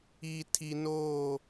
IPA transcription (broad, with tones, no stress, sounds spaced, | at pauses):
i˨ tʰ i˨ n oː˦˨